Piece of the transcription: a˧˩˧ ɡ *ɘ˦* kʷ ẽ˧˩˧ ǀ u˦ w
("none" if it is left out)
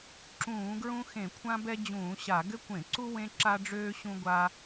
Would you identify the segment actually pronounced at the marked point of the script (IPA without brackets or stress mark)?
ɘ˦